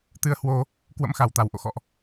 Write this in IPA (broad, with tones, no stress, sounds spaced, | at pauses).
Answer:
t̪ ɨ˧ ə̯ h w o˧ | k w ə̰˧˥ m x a˧˩ w t̪ a˧˩ w ʔ o̰˧˨ x ɔ̰˧˨ ʔ